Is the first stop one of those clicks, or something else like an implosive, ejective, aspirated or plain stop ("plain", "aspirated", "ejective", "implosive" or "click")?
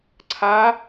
click